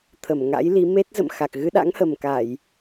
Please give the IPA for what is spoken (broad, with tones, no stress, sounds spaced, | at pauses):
t̪ʰ ə˧˩ m ŋ a̰˧˥ j l i˨˦ m e˦˥ t̚ z ə̰˧˨ m x a˨˩ k̚ ɣ ɨ˧ ɗ a̰˧˥ ŋ h ə˨˩ m k a˧˩˨ j